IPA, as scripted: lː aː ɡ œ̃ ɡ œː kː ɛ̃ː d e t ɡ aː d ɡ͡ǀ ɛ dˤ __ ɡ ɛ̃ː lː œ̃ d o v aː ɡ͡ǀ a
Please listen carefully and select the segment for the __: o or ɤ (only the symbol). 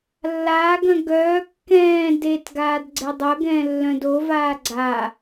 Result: ɤ